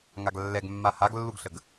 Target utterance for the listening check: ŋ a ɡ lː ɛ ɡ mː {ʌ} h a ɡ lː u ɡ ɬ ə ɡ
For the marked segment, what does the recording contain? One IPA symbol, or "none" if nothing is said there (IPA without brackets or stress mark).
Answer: a